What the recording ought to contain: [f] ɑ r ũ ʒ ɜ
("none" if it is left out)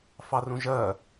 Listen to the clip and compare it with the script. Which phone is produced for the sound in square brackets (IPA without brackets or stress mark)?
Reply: f